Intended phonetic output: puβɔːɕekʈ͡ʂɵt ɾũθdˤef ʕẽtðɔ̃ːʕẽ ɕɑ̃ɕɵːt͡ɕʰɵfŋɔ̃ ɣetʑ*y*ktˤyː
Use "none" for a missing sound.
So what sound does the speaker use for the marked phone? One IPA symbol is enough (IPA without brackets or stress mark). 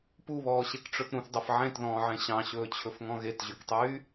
y